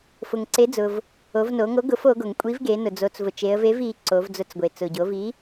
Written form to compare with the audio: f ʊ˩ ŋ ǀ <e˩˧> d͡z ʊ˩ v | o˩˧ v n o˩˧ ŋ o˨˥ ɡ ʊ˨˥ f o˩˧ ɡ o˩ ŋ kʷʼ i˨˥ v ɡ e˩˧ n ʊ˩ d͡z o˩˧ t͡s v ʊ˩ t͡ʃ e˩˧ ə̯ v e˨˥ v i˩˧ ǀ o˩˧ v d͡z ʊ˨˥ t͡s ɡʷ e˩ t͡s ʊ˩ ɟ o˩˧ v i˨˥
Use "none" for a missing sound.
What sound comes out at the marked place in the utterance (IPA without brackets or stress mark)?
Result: e˨˥